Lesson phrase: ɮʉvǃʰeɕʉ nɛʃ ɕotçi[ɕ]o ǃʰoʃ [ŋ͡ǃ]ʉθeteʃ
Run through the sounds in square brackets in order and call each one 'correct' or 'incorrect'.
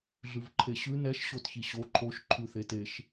correct, incorrect: ǃʰ

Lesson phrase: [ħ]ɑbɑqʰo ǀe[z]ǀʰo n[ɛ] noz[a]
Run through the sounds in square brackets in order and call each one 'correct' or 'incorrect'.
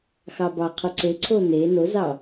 incorrect: x, incorrect: none, incorrect: e, incorrect: ɑ

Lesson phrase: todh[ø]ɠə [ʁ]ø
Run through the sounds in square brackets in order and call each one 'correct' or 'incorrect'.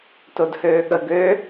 incorrect: øː, incorrect: ɡ

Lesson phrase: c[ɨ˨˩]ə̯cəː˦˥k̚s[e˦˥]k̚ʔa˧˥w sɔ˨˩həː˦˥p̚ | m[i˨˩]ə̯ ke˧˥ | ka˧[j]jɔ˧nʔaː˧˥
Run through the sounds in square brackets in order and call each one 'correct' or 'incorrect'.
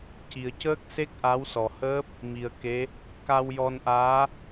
incorrect: i˨˩, correct, correct, incorrect: w

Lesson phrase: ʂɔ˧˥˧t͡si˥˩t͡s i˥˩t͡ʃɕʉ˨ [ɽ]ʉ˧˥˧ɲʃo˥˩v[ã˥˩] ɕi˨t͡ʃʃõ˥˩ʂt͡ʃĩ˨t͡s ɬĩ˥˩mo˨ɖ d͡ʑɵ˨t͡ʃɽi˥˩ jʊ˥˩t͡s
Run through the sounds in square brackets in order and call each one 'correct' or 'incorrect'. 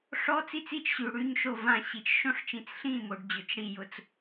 correct, correct

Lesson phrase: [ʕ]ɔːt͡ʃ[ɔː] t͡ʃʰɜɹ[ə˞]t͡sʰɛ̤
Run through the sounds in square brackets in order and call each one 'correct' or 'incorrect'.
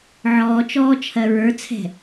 correct, correct, correct

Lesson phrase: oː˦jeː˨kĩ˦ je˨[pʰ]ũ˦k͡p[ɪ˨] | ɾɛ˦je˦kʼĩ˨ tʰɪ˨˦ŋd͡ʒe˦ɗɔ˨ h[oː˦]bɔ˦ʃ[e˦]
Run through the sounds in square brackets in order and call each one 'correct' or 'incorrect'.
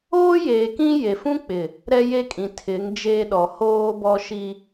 incorrect: f, correct, correct, incorrect: i˦

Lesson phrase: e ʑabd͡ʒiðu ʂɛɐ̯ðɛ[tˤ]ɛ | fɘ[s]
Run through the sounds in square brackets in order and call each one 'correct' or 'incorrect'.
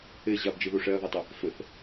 correct, incorrect: θ

